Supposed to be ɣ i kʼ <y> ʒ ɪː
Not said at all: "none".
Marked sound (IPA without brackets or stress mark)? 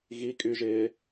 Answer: y